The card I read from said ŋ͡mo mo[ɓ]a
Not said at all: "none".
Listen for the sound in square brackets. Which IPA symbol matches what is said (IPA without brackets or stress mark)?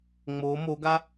ɡ